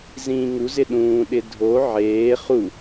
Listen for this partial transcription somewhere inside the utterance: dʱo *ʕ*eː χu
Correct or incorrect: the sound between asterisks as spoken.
correct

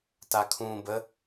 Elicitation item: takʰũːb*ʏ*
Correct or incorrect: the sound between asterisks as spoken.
incorrect: ə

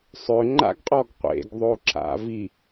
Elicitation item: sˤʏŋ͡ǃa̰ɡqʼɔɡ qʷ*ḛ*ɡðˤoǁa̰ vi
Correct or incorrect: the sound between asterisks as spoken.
correct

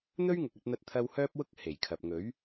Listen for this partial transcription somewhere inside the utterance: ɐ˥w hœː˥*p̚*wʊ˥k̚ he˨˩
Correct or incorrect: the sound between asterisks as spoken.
correct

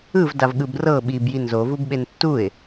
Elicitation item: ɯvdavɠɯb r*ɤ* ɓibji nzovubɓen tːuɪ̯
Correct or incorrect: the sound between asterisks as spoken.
correct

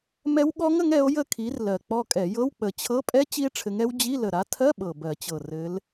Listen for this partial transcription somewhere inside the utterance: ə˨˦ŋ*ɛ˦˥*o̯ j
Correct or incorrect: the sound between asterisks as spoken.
incorrect: ɛ˨˦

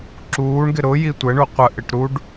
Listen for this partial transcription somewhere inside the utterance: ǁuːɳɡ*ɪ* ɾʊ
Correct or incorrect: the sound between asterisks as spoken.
correct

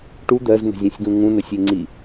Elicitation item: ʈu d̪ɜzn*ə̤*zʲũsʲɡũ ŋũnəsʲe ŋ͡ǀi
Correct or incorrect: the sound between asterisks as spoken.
correct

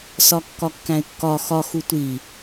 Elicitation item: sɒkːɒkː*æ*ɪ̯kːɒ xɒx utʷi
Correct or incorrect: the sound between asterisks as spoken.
incorrect: æ̃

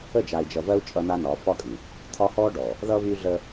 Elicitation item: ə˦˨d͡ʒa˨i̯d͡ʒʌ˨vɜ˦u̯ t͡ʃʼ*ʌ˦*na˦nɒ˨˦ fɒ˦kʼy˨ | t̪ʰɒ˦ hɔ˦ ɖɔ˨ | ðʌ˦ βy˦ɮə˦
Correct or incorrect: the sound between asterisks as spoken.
correct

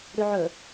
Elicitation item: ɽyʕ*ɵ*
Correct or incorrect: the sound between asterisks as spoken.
correct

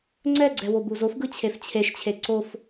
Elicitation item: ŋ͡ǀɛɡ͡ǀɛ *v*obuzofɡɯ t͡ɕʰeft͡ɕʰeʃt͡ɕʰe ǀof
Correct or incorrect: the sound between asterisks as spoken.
incorrect: w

